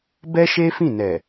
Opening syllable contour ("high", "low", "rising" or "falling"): high